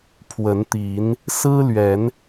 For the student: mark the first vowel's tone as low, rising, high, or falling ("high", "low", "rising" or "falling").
rising